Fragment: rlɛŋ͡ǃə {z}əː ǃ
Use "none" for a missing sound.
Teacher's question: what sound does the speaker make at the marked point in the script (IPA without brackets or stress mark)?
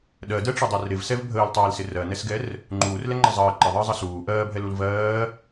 zˤ